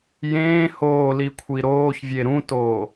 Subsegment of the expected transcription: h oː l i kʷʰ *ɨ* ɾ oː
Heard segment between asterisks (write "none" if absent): i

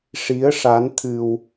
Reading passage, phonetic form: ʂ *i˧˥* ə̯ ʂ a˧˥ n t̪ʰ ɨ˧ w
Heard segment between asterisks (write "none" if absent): i˧˥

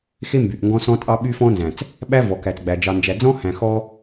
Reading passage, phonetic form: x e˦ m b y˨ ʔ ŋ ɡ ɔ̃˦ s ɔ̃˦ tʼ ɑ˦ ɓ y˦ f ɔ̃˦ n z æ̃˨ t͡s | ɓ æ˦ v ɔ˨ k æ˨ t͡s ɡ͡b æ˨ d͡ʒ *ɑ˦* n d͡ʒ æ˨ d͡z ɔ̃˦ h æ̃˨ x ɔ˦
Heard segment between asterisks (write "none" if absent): ɑ˨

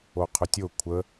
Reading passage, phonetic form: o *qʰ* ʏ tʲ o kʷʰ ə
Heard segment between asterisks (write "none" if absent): qʰ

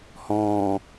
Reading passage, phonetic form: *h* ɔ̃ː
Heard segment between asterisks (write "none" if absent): h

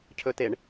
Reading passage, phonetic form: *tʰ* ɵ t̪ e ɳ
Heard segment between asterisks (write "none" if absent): cʰ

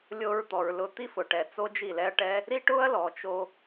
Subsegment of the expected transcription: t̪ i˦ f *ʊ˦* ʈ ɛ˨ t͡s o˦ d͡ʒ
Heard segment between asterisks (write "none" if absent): ʊ˨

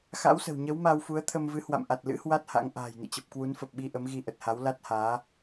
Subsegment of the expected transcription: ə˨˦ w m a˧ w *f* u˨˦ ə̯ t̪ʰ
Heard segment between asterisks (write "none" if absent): f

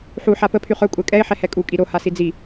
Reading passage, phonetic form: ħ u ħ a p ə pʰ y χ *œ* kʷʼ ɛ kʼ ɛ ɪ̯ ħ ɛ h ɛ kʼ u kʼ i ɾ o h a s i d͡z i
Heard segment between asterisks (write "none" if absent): œ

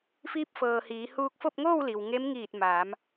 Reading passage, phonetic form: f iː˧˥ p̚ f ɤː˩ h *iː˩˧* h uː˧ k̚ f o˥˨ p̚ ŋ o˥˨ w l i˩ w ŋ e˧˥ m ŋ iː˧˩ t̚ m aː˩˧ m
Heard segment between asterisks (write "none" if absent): iː˩˧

